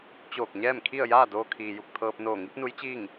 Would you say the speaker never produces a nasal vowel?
yes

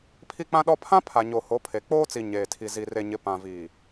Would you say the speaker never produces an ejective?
yes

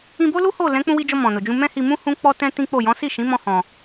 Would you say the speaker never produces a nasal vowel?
no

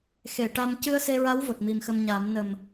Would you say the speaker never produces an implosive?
yes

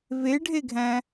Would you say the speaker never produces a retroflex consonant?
no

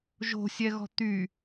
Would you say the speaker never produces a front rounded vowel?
no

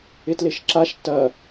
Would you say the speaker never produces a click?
no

